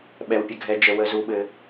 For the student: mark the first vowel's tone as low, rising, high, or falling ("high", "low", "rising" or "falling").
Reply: low